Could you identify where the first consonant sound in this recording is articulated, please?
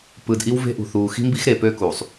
labial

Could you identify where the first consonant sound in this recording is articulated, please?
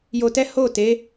palatal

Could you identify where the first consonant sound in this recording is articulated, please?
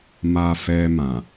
labial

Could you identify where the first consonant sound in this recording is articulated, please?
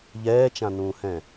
palatal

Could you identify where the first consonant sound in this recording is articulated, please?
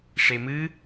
retroflex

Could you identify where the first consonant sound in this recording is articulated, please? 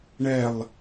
retroflex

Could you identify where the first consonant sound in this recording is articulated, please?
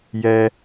palatal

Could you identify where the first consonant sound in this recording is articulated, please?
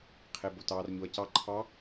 uvular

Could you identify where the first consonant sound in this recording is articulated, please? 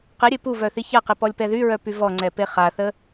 uvular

